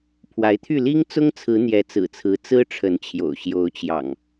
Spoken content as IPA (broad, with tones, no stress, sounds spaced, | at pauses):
pʰ w a˨˦ ɪ̯ t̪ʰ y˥˨ l i˦ ŋ t͡s ʊ˦ ŋ t͡sʰ ɹ̩˨˦ n̪ j ɛ˨˦ t͡s ɹ̩˨˩ t͡sʰ ɹ̩˨˦ t͡s ɹ̩˦ ʈ͡ʂʰ ə˨˦ n t͡ɕʰ j o̰˨˩ ʊ̯ ɕ j o˨˦ ʊ̯ t͡ɕ j ɑ̰˨˩ ŋ